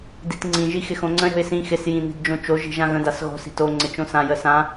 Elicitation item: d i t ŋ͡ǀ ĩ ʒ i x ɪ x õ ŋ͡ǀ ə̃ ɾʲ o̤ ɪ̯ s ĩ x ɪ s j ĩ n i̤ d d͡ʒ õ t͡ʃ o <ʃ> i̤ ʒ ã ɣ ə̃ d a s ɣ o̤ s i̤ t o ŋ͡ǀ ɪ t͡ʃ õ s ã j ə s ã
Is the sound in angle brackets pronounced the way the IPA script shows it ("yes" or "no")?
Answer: no